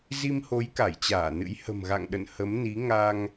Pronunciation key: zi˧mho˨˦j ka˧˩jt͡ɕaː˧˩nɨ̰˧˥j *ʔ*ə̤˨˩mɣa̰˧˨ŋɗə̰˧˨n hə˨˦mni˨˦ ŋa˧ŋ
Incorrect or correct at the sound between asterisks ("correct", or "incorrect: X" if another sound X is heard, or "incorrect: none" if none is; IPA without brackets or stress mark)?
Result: incorrect: h